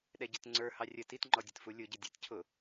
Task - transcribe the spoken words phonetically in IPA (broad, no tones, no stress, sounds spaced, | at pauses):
ɗ ɛ ɟ ɪ t ŋ͡ǀ ə˞ h ɑ rʲ ə t i t ŋ͡ǃ ɔ dʲ ə t f u lʲ ʊ ɟ ɪ dʲ æ t cʰ ʊ